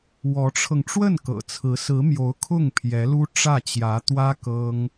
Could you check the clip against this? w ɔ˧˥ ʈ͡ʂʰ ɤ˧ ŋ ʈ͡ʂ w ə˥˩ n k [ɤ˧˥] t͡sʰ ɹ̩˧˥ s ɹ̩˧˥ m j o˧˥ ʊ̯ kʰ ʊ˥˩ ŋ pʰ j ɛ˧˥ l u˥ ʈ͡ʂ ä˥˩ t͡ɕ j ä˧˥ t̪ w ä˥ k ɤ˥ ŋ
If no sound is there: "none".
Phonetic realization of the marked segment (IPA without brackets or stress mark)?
ɤ̰˨˩